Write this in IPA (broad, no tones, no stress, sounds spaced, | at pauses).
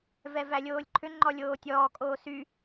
v ɛ v æ lʲ oː lʲ ǃʰ ʏ ŋ͡ǃ ɔ lʲ oː tʲ ɔː kʼ oː s y